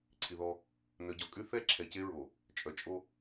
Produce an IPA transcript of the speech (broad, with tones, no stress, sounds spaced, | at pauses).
ǀʰ i˨ ð ɔ˦ | n œ˨ ɟ ɔ˨ kʼ y˦ θ ɛ˦ ǁʰ ɛ˨ c e˦ ɹ o˨ | t͡ʃʼ œ˨ t͡ʃʼ o˦